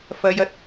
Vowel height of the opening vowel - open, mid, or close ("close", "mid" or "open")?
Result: open